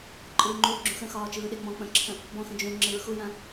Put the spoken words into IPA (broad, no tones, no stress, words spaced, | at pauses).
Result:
ǃʼɯːŋ͡ǃuːɡ͡ǁũxə̃ xɒːt͡ʃɯːɗeŋ͡mɔ̃ k͡pə̃ǁʰə̃ | bɔ̃xə̃ d͡ʒũ ŋ͡ǁɯɹxujã